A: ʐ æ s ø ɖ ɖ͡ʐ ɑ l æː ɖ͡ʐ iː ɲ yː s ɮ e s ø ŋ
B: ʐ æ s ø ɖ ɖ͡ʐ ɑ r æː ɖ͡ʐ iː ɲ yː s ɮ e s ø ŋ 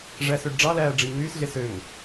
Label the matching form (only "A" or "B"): A